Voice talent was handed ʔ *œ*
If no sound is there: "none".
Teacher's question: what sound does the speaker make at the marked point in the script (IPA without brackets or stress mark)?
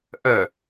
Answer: œ